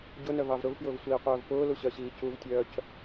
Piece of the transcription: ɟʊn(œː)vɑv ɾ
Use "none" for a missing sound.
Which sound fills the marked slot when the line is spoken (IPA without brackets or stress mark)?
œ